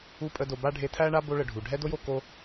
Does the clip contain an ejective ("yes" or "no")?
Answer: yes